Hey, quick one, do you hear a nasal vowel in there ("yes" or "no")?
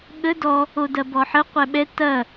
no